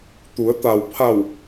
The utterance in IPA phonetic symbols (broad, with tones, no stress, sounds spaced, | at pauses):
t̪ u˩˧ ə̯ t̪ a˩ w pʰ a˧˩ w